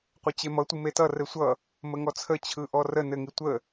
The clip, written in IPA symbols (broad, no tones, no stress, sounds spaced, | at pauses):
qʷ ɘ t͡ɕ e m ʌ tʷ ɯ m e t ʌ r ɘ sʷ ʌ | m ə ŋ ɔ t͡sʰ ə t͡ɕʰ ɯ ʔ ɔ r ə n ɘ ŋ i tʷ ə